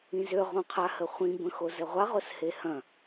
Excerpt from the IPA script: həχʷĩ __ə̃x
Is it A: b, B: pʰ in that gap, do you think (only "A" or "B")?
A